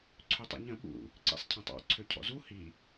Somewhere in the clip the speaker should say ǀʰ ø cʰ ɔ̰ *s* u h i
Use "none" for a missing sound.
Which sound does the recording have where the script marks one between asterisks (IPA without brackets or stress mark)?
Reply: z